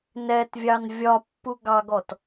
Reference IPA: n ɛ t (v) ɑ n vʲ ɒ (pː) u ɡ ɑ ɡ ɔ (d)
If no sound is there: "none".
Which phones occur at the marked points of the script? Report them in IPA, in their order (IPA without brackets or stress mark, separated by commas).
vʲ, pː, t